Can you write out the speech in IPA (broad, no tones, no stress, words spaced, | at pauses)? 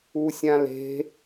usʲãle̤